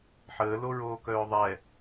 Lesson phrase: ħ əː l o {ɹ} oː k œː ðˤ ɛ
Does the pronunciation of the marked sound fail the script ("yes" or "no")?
no